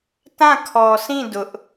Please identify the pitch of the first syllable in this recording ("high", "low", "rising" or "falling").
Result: falling